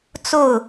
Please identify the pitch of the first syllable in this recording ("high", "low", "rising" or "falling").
falling